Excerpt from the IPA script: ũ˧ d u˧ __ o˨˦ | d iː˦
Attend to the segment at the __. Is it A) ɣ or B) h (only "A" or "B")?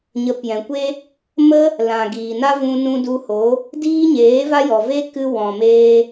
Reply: B